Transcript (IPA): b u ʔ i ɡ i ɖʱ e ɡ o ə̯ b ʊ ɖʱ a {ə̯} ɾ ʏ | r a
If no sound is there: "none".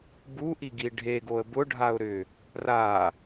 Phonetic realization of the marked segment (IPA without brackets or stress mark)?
ʊ̯